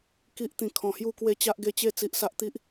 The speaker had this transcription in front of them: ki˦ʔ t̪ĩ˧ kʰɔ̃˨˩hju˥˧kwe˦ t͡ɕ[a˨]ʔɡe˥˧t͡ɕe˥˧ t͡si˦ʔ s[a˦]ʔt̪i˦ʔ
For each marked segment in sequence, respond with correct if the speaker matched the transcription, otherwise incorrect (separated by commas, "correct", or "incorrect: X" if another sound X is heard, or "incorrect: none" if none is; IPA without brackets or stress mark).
incorrect: a˦, correct